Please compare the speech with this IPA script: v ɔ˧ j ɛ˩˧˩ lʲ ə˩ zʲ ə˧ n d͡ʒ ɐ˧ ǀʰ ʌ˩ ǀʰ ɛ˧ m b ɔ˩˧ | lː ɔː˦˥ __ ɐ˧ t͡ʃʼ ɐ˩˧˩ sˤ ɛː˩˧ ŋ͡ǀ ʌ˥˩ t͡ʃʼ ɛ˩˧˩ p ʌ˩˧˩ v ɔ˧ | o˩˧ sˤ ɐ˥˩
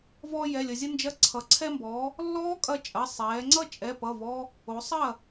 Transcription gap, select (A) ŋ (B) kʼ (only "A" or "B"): B